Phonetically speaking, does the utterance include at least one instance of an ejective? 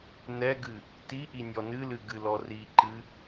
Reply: no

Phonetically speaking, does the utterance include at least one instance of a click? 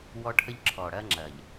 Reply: yes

